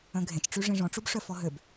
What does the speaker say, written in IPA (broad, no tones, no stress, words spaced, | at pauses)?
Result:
œ̃ɡʱẽt͡ʃʈ͡ʂy ʐĩʐɔ̃ʈ͡ʂub ʂœfɔɦøb